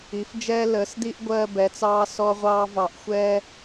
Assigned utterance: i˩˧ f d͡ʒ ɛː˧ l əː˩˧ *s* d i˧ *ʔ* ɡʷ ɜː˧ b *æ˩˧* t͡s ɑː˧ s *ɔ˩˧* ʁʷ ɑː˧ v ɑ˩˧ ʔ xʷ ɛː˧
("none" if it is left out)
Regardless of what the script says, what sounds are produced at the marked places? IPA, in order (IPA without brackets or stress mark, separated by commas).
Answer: s, ʔ, ɛ˩˧, ɔ˧